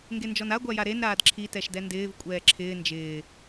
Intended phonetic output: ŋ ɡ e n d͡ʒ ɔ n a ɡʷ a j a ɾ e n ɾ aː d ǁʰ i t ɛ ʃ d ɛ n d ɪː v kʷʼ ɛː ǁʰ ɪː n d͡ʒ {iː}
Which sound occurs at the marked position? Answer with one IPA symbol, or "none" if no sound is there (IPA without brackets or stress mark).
ɪː